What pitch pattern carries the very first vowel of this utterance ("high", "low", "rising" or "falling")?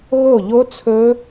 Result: falling